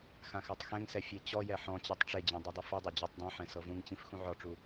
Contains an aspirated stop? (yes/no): no